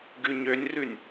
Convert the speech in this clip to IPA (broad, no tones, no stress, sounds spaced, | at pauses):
ɡ ʉ ɲ ø nʲ r ʉ nʲ